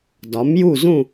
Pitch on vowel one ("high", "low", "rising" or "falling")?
rising